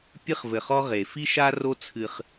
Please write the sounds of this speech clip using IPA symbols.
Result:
pʲ ɨ˦ χ v ɘ˨ χ ɔ˦ ʁ e˨ f i˦ ʃ a˦ r o˦ t͡sʰ ɨ˦ χ

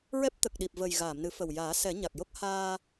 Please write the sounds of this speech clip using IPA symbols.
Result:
ɹ ɛ˦˥ p̚ t̪ ə˨˩ k̚ ɗ i˨˩ p̚ v ə˨˩ j ɣ aː˨˩˨ m n ɨ˨˩˦ f ə˨˩ w j aː˨˩˦ s ɛ˨˩˦ ɲ a˨˩ k̚ j o˦˥ k̚ h aː˧

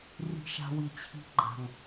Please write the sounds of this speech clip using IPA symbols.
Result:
r i̤˨ ʃ a̤˨ w i˩ t͡ɕʰ i̤˨ ɡ͡ǃ a̤˩ ŋ

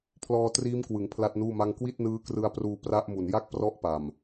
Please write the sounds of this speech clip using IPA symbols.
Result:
pʰ l ɔː˧ t r iː˦˥ m k w ɯ˩˦ ŋ pʰ l a˥˩ t̚ n uː˥˩ m a˥˩ ŋ k w i˥˩ t̚ n ɯː˦˥ k r ɯ˧ a̯ p r uː˧ p r a˦˥ ʔ m u˨˩ n j a˥˩ k̚ p r ɔ˦˥ ʔ p a˨˩ m

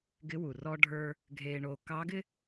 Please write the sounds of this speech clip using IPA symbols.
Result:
ɡ ɪ˧˥ w u˩ r ɔ˥ ɖʱ ə˞˥ | ɡʱ eː˧ ɳ o˧ k ɑ˧˥ ɡ ɪ˥

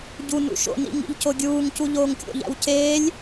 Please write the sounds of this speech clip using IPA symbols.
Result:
ɟ u n ṵ ʃ o̰ n ḭ ŋ ḭ ʎ c o ɡʲ uː ŋ c u ʎ oː ŋ kʲ o̰ ʎ æ̰ w c eː lʲ

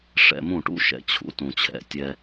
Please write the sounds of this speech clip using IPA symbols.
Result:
ʂ ɛ̰˧ m ũ˦˨ ʈ ṵ˦ ʃ ɛ̰˨ t͡ɕʰ ṵ˨˦ t ũ˨ t͡ɕʰ ɛ̰˨ tʲ ɛ˧

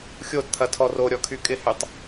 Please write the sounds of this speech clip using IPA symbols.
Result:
xʲ o d t̪ʰ ɐ tʰ ɔ r o ɾʲ ɔ kʰ y kʼ ɪ h y tˤ

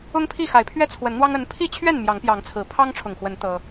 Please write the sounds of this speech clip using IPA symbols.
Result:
ʊ˦ ŋ pʰ i˥˨ x a˨˦ ɪ̯ pʰ ɥ ɛ˦ t͡sʰ w ə˨˦ n n̪ w ɑ˦ ŋ ə˨˦ n pʰ i˥˨ t͡ɕʰ ɥ ɛ˥˨ n m j ɑ˨˦ ŋ p j ɑ˨˦ ŋ t͡sʰ ɹ̩˨˩ pʰ ɑ˦ ŋ ʈ͡ʂʰ ʊ˨˩ ŋ x w ə˨˦ n t̪ ɤ˦

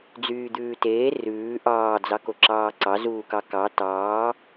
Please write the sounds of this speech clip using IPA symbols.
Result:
d͡z yː d̪ ʉː t eː r ʉː ʔ ɑː d͡z ɑ k o ǁ ɑː ǀ ɑ z uː k ɑ k ɑ t ɑː

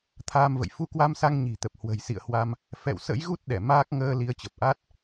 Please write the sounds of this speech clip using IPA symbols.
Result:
t̪ʰ aː˧ m v ə̰˧˨ j f u˧ k w a˧ m s a˧ ŋ ɲ i̤˨˩ t̪ ə˨˩ p̚ h w ə̤˨˩ j s ḭ˧˨ ə̯ h w a˧ m | f ɛ̰˧˨ w s ə̰˧˥ j ɣ u˦˥ t̚ ɗ ɛ˧˩ m aː˦˥ k̚ ŋ əː˧ l i˨˦ ə̯ t͡ɕ ə˨˩ p̚ ʔ a˦˥ t̚

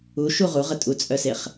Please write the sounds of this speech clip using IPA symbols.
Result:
u ʃ u ʁ u ʁ ə tʼ u t͡sʼ œ s e χ

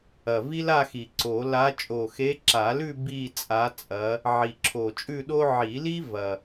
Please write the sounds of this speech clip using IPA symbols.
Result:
ɐ˨˩ v i˥ l a˥˧ x i˨˩ ǀ o˨˩˦ l a˧˥ t͡ʃʼ o˨˩ x e˧˥ ǁ a˨˩˦ l ʉ˥˧ b i˥˧ t͡sʼ a˧˥ t͡sʼ ɐ˧˥ | ʕ i˨˩ ǁʰ o˨˩ t͡ʃʼ ʉ˥˧ ɗ o˥ ʕ i˨˩˦ l i˥ v ɐ˨˩

